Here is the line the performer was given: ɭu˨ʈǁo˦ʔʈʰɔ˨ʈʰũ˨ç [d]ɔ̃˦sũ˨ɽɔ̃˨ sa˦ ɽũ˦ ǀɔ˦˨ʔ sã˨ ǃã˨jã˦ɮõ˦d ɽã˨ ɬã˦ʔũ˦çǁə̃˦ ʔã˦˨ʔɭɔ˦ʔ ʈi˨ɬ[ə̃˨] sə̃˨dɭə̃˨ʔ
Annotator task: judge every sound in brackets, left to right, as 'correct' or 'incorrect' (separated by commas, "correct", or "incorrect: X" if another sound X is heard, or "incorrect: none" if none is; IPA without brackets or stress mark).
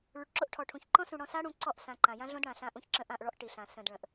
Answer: incorrect: ǃ, incorrect: ã˨